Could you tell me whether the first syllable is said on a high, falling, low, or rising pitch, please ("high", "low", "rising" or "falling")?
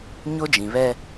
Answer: high